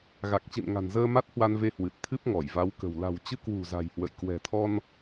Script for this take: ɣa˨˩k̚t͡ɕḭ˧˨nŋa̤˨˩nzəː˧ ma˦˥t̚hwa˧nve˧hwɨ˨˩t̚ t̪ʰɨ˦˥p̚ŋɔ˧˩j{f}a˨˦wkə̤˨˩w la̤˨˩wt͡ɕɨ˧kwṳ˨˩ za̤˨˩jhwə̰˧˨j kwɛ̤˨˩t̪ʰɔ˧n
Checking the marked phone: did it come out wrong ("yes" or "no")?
yes